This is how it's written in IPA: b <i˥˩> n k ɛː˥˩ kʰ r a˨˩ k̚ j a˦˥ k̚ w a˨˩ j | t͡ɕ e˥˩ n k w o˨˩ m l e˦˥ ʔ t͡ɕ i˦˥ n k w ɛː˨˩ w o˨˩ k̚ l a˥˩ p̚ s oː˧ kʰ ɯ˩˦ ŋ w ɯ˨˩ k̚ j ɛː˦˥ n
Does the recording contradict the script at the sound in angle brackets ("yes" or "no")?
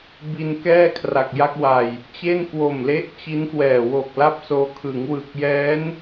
yes